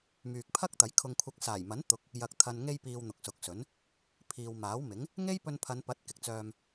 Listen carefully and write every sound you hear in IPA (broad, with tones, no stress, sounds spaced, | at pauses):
m yː˨ k̚ pʰ ɐ˥ k̚ t̪ ɐ˨˥ j kʰ ʊ˧ ŋ kʷʰ ɐ˧ k̚ s aː˨˩ j m ɐ˨˥ n t̪ ʊ˨˥ k̚ | j ɐ˨ k̚ t̪ʰ ɐ˨ n ŋ e˧ j p iː˨ w n̪ ʊ˨ k̚ s ʊ˨˥ k̚ s ɵ˨˥ n | pʰ iː˨ w m aː˨˥ w m ɪ˨˥ ŋ | ŋ e˥ j p ɵ˧ n pʰ ɐ˨˧ n p ɐ˨˥ t̚ k ɪ˨ k̚ t͡s œː˧ m